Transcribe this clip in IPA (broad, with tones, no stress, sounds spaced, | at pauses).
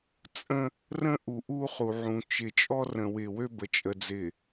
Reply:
t͡sʼ ə̃˦ | r ə̃˦ ʔ u˨ ʔ u˦ χ u˨ ʕ ũ˨ t͡ʃ ɪ˨ t͡ʃʼ ɔ˦ r ə̃˨ w ɪ˨ w ø˦ b ə˨ t͡ʃʼ ə˨ d͡z ɪ˨